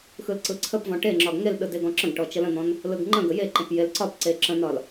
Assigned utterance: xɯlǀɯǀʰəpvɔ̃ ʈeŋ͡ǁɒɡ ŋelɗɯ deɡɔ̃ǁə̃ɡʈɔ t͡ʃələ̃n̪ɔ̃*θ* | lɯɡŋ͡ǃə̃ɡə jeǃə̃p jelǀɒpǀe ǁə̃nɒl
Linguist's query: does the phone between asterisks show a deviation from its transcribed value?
yes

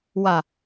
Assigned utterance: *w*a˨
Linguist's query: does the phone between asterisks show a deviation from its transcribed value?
no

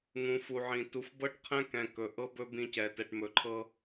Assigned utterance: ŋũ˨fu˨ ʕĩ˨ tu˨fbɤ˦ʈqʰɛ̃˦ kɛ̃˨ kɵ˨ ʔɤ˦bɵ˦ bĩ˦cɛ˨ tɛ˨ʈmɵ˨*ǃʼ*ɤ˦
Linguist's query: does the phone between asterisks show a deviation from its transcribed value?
yes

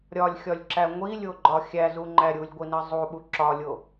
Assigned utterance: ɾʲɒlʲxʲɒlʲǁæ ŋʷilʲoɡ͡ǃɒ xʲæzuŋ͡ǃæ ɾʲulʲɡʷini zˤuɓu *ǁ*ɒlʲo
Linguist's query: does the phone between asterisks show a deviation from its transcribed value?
no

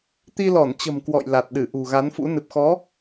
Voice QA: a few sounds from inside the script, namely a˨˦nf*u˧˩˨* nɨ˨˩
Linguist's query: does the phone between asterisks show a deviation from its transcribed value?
yes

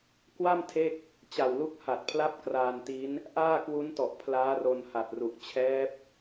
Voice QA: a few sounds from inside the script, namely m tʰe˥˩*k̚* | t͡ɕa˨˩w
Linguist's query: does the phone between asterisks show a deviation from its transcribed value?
no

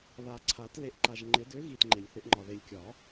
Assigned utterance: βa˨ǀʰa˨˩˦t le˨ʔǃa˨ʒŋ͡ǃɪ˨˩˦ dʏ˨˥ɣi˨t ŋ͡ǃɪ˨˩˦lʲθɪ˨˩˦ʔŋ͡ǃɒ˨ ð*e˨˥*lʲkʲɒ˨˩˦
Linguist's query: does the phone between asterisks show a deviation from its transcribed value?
yes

